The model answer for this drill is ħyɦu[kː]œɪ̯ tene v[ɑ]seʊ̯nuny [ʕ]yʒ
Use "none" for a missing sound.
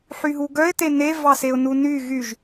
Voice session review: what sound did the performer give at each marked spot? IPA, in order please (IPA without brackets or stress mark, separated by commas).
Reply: ɡ, ɑ, ɣ